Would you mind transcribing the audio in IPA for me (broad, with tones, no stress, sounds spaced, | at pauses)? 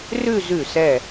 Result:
r ʉ˥˧ z ʉ˧˩ s ɛ˧˩